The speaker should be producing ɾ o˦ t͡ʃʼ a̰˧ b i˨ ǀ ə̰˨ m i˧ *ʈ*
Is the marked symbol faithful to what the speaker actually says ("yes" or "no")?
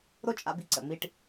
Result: yes